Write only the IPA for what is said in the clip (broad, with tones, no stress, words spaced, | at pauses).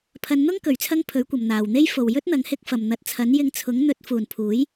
pʰɐ˨˧nn̪ʊ˥ŋ kɵ˨ɥt͡sʰɐ˥ŋpʰɵ˨˥ɥkʷɐ˨m n̪aː˨wn̪e˥j fo˨wjɵ˥t̚ n̪ɐ˨˥ŋhɪ˧k̚fɐ˨mn̪ɐ˨˥t̚ t͡sʰɐ˨˥n jɪ˧ŋ t͡sʰʊ˨˥ŋn̪ɵ˨˥t̚ fuː˨npʰuː˨˥j